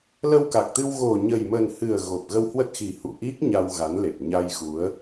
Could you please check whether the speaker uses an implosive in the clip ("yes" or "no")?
no